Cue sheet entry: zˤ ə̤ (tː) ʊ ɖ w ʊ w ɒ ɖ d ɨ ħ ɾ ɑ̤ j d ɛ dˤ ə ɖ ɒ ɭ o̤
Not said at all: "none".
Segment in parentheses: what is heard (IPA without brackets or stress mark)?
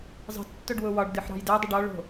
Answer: tː